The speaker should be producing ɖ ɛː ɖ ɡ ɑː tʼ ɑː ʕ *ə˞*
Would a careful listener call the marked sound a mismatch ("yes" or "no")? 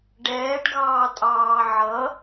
yes